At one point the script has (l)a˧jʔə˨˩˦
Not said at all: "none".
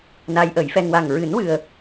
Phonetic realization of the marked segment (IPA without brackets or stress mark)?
n